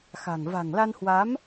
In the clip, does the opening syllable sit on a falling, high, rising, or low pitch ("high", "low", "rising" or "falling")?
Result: low